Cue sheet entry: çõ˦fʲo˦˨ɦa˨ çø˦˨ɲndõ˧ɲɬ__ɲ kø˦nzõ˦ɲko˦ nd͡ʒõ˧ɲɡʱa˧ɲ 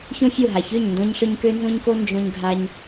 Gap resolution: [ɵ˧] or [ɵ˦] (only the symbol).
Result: ɵ˧